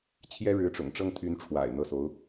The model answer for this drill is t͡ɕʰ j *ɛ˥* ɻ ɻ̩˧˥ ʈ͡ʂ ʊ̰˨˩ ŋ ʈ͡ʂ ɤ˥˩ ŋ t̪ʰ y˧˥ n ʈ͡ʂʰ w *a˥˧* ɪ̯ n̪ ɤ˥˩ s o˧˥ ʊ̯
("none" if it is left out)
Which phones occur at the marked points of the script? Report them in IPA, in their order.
ɛ˥, a̰˨˩

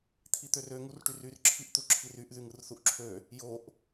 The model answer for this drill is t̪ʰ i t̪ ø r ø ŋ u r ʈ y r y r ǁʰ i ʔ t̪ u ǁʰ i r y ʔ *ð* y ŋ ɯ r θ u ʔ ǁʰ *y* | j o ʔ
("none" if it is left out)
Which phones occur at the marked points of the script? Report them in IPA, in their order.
ð, ø

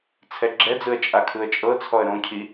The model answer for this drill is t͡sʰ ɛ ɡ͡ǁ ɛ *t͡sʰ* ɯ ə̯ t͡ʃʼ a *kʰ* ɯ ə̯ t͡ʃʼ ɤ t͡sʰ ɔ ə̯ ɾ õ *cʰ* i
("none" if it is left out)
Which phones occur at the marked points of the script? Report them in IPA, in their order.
d͡z, kʰ, cʰ

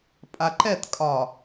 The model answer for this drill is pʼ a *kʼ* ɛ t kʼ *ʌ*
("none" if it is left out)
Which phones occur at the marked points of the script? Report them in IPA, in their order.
ǃ, ɒ

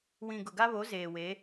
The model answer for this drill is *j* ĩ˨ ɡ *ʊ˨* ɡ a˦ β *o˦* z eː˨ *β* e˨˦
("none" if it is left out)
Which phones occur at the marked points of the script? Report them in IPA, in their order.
w, ʊ˨, o˨˦, w

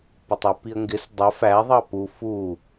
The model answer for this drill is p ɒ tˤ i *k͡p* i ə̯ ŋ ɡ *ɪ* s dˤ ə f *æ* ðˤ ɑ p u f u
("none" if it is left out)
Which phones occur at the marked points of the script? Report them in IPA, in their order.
p, ɪ, æ

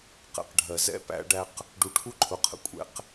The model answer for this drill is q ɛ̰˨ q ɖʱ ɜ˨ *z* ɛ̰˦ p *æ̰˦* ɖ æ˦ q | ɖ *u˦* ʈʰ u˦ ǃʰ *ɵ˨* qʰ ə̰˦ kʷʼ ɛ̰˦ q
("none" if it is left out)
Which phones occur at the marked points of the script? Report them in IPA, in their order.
z, æ̰˦, u˨, ʊ˨

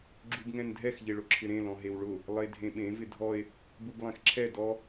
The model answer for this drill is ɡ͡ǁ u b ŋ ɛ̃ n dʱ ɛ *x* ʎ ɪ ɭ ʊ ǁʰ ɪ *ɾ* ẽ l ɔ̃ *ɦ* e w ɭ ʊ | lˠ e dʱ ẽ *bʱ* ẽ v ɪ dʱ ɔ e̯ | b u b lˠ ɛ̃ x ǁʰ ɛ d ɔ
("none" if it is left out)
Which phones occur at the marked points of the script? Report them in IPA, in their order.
x, ɾ, ɦ, ɓ

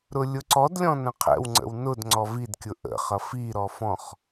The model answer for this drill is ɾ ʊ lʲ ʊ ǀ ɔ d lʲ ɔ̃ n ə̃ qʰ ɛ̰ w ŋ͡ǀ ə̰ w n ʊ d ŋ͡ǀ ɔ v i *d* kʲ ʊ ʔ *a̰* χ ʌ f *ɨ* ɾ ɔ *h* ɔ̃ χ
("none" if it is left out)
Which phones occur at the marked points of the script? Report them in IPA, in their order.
d, ə̰, i, f

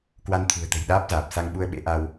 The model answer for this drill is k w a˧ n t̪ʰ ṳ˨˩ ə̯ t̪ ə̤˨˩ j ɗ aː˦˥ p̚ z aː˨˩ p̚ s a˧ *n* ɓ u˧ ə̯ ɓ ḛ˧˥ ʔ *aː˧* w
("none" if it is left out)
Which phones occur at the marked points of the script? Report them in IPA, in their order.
ŋ, a˧

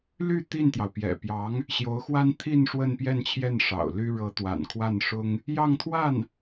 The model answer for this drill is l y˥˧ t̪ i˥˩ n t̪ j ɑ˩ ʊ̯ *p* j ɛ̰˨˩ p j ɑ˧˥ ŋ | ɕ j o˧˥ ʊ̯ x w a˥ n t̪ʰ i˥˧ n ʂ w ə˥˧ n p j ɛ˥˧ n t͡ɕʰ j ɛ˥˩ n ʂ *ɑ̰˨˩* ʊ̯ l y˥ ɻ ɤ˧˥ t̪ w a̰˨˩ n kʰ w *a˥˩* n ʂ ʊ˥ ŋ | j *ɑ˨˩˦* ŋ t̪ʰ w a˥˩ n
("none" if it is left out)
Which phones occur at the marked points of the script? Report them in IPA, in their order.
p, ɑ̰˨˩, a˥˩, ɑ˥˧

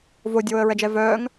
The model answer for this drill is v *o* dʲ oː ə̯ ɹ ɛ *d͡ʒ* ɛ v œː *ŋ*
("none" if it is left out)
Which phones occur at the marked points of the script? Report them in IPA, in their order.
o, d͡ʒ, ŋ

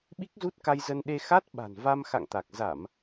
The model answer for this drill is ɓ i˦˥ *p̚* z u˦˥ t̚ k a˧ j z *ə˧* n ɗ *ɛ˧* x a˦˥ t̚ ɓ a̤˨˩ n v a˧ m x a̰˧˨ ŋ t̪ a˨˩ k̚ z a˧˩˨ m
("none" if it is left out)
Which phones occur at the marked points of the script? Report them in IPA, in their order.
k̚, ə˧, e˧

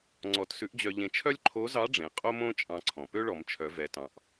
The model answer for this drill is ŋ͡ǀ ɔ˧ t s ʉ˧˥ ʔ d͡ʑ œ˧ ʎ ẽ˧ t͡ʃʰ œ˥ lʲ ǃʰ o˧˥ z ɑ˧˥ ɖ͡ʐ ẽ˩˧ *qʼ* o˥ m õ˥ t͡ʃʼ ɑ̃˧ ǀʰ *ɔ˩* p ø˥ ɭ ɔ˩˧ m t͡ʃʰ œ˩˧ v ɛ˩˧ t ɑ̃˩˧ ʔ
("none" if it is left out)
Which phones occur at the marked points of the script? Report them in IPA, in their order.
qʼ, ɔ̃˩

